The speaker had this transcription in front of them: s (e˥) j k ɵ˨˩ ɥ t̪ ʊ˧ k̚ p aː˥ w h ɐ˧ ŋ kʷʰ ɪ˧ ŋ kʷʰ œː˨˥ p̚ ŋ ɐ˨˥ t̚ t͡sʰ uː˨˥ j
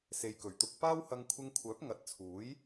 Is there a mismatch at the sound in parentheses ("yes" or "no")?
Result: yes